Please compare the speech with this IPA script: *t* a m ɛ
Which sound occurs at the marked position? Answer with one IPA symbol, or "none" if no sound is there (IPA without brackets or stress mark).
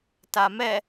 t